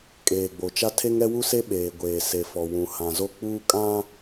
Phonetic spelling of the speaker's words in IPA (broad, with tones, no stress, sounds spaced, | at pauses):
kʼ eː˨ ɡ͡b o˨ t͡ʃ a˦ tʰ e˦ ŋ ɛ˦ w u˦ s e˦ ɓ eː˨ ɡʷ eː˨ s e˨ f ɔ˨ w ũ˨ h ã˨ z o˦ k͡p uː˦ kʼ ã˦